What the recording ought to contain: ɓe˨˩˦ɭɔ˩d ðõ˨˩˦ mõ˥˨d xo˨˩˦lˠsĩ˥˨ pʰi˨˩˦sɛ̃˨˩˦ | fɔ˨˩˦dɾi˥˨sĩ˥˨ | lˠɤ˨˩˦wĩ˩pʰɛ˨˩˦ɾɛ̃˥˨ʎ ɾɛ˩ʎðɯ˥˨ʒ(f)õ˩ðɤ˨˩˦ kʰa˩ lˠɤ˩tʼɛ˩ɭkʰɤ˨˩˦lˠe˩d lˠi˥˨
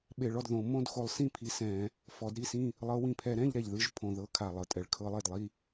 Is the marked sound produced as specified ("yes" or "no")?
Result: no